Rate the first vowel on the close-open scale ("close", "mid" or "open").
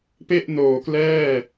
mid